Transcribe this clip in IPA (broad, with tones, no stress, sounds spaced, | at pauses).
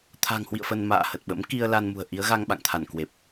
t̪ʰ a̤˨˩ ŋ h w ḭ˧˨ ə̯ f ə˧ n m a̰ː˧˨ h ə˨˩ t̚ ɓ ə̰˧˥ m k i˧ ə̯ l a˧ n m ṳ˨˩ ə̯ ʔ i˨˦ ə̯ ɣ a˧ ŋ ɓ a̰˧˨ ŋ t̪ʰ a˧˩ n k w e˨˩ p̚